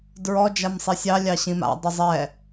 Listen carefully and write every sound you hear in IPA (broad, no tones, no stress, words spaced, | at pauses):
dɹɔd͡ʒam sˤisʲɑlʲɑ ɕĩma̰dˤʉ zˤɛ